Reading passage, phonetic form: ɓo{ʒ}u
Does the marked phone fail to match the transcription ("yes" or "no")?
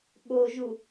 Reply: no